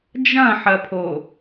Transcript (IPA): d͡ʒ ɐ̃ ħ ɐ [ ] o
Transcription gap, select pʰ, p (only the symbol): pʰ